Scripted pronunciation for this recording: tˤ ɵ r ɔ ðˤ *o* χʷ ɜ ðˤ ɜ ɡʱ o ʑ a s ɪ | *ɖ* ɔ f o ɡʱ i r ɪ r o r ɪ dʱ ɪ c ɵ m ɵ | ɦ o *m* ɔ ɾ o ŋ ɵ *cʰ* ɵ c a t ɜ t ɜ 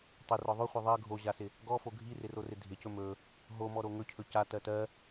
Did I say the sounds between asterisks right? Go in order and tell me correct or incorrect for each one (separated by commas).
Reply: correct, incorrect, correct, correct